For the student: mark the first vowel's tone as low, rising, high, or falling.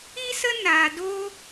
high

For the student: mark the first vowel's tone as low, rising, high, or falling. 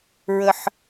high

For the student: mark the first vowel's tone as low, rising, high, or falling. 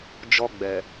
high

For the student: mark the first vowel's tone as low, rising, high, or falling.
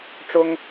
high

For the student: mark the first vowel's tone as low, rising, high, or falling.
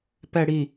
low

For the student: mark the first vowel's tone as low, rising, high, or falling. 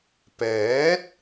rising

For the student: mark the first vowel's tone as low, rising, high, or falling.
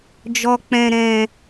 low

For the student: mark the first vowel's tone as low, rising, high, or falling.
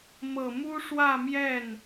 low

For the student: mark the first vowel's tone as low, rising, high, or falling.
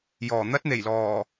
low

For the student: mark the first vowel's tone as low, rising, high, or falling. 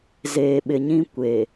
low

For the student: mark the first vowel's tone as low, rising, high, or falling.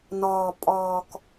low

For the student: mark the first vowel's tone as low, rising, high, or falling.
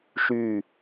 falling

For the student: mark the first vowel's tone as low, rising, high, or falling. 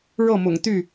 falling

